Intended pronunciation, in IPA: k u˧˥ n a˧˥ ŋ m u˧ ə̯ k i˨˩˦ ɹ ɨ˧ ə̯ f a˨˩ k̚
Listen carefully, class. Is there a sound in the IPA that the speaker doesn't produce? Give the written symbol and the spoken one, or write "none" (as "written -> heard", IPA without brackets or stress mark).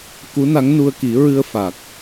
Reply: m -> n